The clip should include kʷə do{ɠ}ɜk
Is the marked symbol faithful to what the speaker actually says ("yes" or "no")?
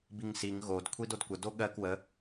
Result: yes